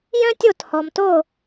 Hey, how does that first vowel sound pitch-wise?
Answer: high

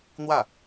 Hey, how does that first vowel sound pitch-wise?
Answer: falling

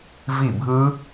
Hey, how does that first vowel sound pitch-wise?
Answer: falling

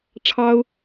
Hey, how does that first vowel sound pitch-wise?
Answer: high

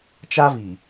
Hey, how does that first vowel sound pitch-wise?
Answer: high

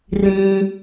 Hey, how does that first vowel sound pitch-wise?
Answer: high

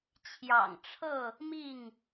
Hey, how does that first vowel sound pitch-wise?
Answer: low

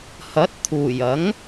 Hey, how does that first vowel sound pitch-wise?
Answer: rising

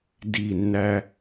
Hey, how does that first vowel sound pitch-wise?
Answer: falling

